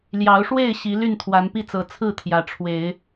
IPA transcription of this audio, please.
l j ɑ˨˦ ʊ̯ ʂ w e˥˨ ɪ̯ ɕ i˨˦ l y˥˨ n t̪ʰ w a˨˦ n p i˥˨ t͡s ɤ˨˦ t͡sʰ ɹ̩˥˨ t̪ʰ j ä˨˦ ʈ͡ʂʰ w e˨˦ ɪ̯

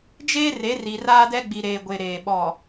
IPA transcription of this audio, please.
d͡ʒ eː˦ r e˨˦ r i˨ r aː˦ d ɛ˦ ɡ͡b i˨ ɾ eː˨ ɡʷ e˨ ɾ eː˨ ɓ ɔ˨

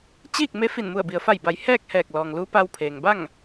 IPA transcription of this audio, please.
t͡ɕ iː˥˨ k̚ m e˧˥ f i˧˩ n m u˧˩ ə̯ b i˩ ə̯ f a˧˩ j b a˩˧ j h ɛː˥˨ k̚ h ɛː˧˩ k̚ l ɔː˩ ŋ l uː˧˥ p a˧ w pʰ eː˩ ŋ b a˥˨ ŋ

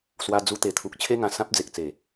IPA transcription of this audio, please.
s w a˧ d͡z u˧ t̪ e˨˩ t̪ʰ u˨ k̚ t͡ɕʰ e˦ ŋ ã˨˩ s ã˦ p̚ d͡z e˨ k̚ t͡s e˨˩

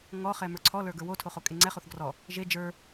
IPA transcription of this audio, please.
ŋ ɔ χ ɛ m ə˞ ǀʰ ɔ l ə˞ ɡ ə˞ w o tʰ o χ o kʼ e ŋ͡ǀ ɛ χ o θ ɡ r ɔ | ʒ e d͡ʒ ə˞

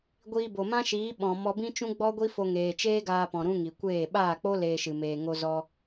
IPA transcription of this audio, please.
ɡʷ iː˧ b o˨ m ã˦ ʃ iː˨˦ ɓ ɔ̃˨ m ɔ˧ b ĩ˦ t͡ʃ ũ˦ ɡ͡b ɔ˦ ɡʷ i˦ f o˧ ŋ eː˨ t͡ʃ eː˦ ɡ aː˧ p ɔ̃˨ ɾ ũ˦ ŋ i˨ kʷ eː˦˨ ɓ aː˦˨ k͡p o˦ l eː˧ ʃ ɨ˨ m eː˨ ŋ o˧ z ɔ˧

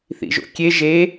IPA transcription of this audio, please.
θ ḭ ʒ o̰ kʲ e ʒ e

